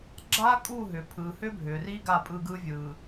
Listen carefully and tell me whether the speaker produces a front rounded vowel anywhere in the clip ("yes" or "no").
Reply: yes